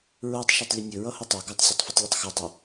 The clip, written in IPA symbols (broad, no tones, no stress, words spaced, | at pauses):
ɹotˤ ʃɛtˤlʲʌnʲɵ ɹʌhʊtˤo ɡɔtˤsʲɵtˤfʌtˤ lʲɵtˤxʌdˤɵ